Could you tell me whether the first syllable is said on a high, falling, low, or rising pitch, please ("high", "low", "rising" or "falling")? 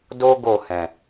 high